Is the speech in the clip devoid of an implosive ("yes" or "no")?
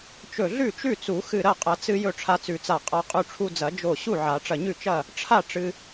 yes